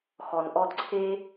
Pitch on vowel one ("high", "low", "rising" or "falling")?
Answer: low